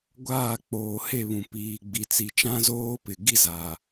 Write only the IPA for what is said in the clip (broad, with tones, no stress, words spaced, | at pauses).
ɡʷaː˦˨k͡poː˨he˦˨βũ˨ piː˨ɡ͡bi˨t͡si˨t͡ʃã˦ zoː˦pɪ˨ ɡi˦za˨